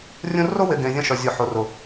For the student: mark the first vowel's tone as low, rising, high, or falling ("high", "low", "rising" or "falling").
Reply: high